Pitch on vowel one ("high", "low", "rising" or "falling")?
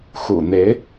low